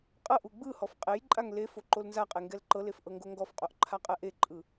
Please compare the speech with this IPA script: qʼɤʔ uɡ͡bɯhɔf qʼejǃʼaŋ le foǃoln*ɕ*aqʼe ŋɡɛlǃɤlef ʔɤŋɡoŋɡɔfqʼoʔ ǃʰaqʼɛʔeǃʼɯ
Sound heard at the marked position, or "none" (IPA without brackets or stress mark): z